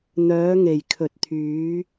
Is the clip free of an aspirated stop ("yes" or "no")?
no